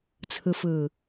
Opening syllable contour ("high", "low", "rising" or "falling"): low